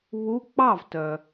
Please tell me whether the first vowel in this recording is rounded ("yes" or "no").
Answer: yes